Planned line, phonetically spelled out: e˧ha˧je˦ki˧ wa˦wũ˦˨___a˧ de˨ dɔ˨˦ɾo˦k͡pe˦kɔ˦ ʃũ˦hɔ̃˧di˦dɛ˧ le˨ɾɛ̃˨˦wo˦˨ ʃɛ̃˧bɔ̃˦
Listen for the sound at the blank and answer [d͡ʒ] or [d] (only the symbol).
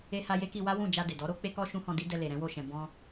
d͡ʒ